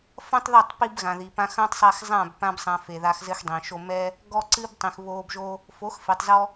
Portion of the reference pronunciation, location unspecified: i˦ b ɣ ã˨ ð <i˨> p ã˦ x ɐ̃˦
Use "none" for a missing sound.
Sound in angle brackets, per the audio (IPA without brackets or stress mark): i˨